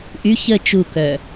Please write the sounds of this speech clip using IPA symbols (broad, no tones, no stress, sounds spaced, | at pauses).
ʔ y ç ə t͡ʃ u k œ